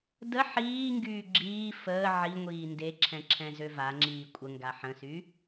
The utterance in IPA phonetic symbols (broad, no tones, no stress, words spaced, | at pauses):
də ħiːŋɡyː ɡ͡ǁiː fəː ʕiŋʷiː ndeǁʰɛ̃ǁʰɛ̃zø vaŋ͡ǁiː kʷʼəŋɡa ħə̃sy